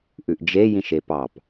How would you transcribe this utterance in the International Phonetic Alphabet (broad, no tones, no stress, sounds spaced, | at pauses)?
ʔ ʉ ʔ d͡ʒ e j ĩ ʃ e p ɑ p